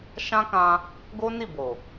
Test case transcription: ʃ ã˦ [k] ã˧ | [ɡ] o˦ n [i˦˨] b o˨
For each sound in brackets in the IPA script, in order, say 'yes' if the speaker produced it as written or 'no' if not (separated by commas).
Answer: yes, yes, yes